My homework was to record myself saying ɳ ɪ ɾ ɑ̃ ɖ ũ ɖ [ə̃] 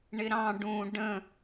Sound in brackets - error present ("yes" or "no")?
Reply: no